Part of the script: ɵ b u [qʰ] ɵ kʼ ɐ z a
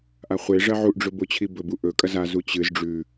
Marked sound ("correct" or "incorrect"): incorrect